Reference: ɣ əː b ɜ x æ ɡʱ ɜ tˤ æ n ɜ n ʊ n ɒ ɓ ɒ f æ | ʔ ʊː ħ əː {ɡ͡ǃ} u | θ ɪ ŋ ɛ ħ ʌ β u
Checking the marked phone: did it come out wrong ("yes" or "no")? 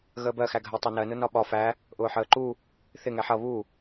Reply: yes